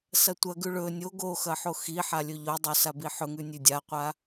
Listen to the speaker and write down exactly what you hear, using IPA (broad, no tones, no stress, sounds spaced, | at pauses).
s ɐ tʷ ɐ ɡ ʉ ɭ ɵ nʲ o ɡ o x ɐ ħ o x i ħ a lʲ ɵ ʎ o dˤ o s a b i ħ ɵ ŋ ʉ nʲ ʉ dʲ a qʷ a